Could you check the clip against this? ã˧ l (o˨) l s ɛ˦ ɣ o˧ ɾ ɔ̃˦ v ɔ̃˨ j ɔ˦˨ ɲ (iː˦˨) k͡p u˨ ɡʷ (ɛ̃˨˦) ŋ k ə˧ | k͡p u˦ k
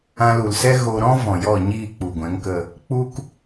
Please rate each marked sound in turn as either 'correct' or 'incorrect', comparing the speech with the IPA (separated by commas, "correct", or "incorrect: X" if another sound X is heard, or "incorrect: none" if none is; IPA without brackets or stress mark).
incorrect: u˨, correct, correct